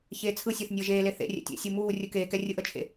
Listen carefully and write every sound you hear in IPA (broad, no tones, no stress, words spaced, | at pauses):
çeːt͡sʰɯsʲeθ nʲəːʒeːle θḛ rʲɛ̰tʲḛsʲu muː rʲɯkeːkɛ rʲɯʔət͡ʃʰḛ